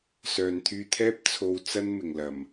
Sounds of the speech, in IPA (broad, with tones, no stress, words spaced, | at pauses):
sœː˨nt̪ʰyː˧t̪ʰɛː˥p̚ t͡sʰo˧w t͡sɐ˥nmɪ˨˩ŋ lɐ˨˩m